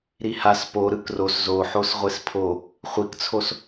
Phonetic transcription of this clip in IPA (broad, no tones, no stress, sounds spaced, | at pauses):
ɾ i h a s p o ɾ ɯ k r o s z o ħ o s ʁʷ e s pʰ o | χʷ i k t͡sʰ o s